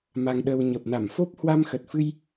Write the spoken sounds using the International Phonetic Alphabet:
m a˧ ŋ ɗ ə˧ w ɲ ə˨˩ p̚ n a˧˩ m f o˦˥ p̚ h w a˧ m x ə˨˩ t̚ f ɨ˧ j

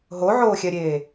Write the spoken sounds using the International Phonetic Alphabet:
ɦ o ʕ oː xʲ ɛ ɾʲ eː

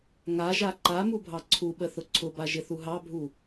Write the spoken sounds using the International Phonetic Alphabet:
ŋ a ʒ a ǃ a m u bʱ ɑ ǀʰ u ɓ ə θ ʊ ǀʰ ʊ b a ʒ ɪ θ u ɦ ɑ bʱ u

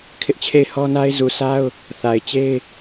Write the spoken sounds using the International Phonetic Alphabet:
kʰ ɪ˦ ʔ t͡ɕʰ e˦˨ ɪ̯ h ɔ˦ n a˦ ɪ̯ z u˨ sʰ a˦ ʊ̯ | θ a˨ ɪ̯ t͡ɕ e˦ ɪ̯

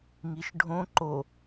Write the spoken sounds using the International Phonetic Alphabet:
ŋ i ʃ ɖʱ õ ǃ o

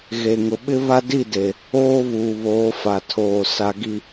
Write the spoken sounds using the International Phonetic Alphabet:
ɣ e˨ ŋ ʊ˨ ɓ ɪ˦ β a˦ d i˦˨ d e˨ | oː˦ β uː˨ β oː˨˦ f a˨ tʰ oː˨ s a˨ ɡ i˨

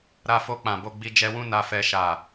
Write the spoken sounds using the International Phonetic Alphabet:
ɾ a˧ f o˧ k͡p ã˨ b o˧ ɡ͡b i˧ d͡ʒ ɛ˧ w ũ˦ n a˦ f ɛ˦ ʃ a˦˨

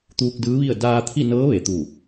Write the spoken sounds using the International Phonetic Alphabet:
t̪ uː˧ k̚ d ɯː˧˥ ʋ i˥˨ ə̯ d aː˧ t̪ʰ i˥˨ n ɤː˧˥ ʋ e˩˧ t̪ u˧˩

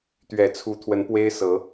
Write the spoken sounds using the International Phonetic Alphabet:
t̪ ɥ ɛ˨˩ t͡sʰ u˨˦ t̪ʰ w ə˨˦ n p w e˦ ɪ̯ s ɤ˨˦

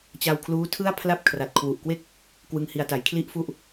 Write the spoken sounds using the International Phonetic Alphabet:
t͡ɕ a˧ w kʰ l uː˦˥ tʰ ɯ˥˩ a̯ pʰ l a˥˩ p̚ kʰ r a˨˩ t̚ kʰ w u˨˩ ʔ k w e˥˩ k̚ | k w ɯ˧ ŋ h i˧ a̯ t a˨˩ j kʰ l i˥˩ ʔ f u˥˩ ʔ

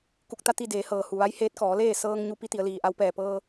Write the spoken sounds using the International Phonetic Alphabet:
k u˧˩ k̚ t̪ a˥˨ t̪ i˥˨ d eː˩˧ h ɤː˩ h u˩ ʋ a˧˥ j h eː˧˥ t̚ k ɔː˩˧ l eː˥˨ s ɤː˧ ŋ ɲ u˧ p i˧˥ t̪ i˩˧ ə̯ l iː˩ ʔ a˧ w p ɛː˧˩ p ɤː˧

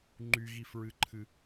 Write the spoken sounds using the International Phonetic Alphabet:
ŋ͡ǃ y ɣ i f ɹ ɨ ǃʰ ɨ

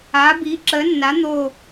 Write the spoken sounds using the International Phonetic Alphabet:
aː˨˥ b iː˨˥ ǁ əː˨˥ nː a˨˥ n̪ oː˥˨

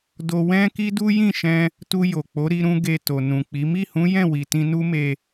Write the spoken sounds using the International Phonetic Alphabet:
d o˧ w ɛ̃˦ k i˦ d u˦ j ĩ˦˨ ʃ ɛ̃˧ | t u˧ j o˨ k͡p o˨˦ ɾ i˧ ɾ ũ˧ ɡ e˧ t o˨ n ũ˨ k͡p i˨˦ m i˦˨ h ũ˨˦ j ɛ̃˦˨ w i˨ t ĩ˧ n u˦ m e˧

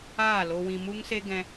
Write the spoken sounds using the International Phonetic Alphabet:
aː˦˨ l o˧ w ĩ˧ m u˦ ŋ s e˦ ɡ ɛ̃˦

